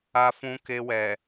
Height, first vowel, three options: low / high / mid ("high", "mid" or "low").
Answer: low